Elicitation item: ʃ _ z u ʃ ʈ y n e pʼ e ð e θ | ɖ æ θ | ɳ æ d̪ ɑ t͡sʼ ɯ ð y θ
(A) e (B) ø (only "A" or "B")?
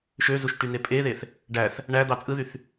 B